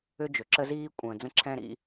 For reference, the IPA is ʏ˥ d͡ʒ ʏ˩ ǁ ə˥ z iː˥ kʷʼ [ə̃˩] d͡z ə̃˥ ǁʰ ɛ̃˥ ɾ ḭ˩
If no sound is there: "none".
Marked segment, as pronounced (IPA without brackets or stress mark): ə̃ː˩